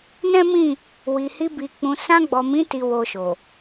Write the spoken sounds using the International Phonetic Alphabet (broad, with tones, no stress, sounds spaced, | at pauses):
n ɛ̃˦ m ĩ˦˨ | w i˨ h i˧ b i˨ k͡p ũ˨ s ã˧ ɡ͡b ɔ˨ m ĩ˨˦ t i˧ w o˧ ʃ o˨